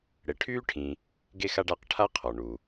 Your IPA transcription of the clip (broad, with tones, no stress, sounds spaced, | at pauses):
ɽ e˨ ʈʰ yː˥ ʈʰ ĩ˨ | ɡ e˦ x a˦ ɖ a˦ q ʈʰ a˥ qʰ ɔ˩ ɳ u˩